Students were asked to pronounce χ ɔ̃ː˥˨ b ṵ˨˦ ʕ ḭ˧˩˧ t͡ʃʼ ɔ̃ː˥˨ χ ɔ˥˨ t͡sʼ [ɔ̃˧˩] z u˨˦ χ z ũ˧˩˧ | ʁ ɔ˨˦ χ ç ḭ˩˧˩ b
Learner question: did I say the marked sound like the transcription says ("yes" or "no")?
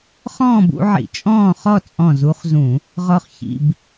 yes